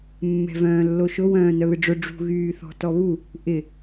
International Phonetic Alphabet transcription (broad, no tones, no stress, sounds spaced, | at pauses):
mː ɛ̤ v œ̃ː lː o ʃ ʊ w œ̃ː n œ β ɪ ɖ͡ʐ ʊ ɖ͡ʐ ṳ ɣ yː θ ɔ̤ t ɔ β u | ʔ ɪ